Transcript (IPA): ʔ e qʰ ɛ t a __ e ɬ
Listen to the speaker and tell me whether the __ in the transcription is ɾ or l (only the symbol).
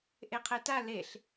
l